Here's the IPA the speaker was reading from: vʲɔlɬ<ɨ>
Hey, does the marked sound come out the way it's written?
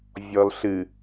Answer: yes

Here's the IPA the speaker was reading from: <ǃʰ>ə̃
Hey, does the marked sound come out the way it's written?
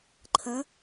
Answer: yes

